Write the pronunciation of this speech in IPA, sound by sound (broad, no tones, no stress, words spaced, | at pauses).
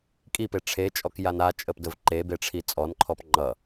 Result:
kʼipe ʈ͡ʂʰet͡ʃʼɔk jana t͡ʃʼəpdəv ǃe beʈ͡ʂʰit͡sʼɔnǃʰɔp ŋ͡ǃʌ